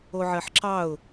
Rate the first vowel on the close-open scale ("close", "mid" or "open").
mid